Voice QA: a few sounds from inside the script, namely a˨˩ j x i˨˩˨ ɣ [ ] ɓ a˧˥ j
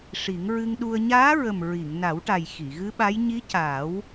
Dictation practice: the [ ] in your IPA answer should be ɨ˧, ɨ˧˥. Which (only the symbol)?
ɨ˧˥